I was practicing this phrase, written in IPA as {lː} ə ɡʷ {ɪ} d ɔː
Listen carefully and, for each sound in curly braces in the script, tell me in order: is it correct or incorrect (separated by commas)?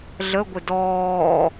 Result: incorrect, correct